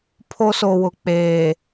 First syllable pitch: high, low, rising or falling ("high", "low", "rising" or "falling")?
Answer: high